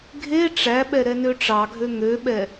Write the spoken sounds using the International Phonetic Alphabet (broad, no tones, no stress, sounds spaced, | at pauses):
ɡʱ e ʈ͡ʂ æ ɓ ɛ ɾ ɛ n ø ʈ͡ʂ ɑ ɡʱ ø ŋ ø ɓ ɛ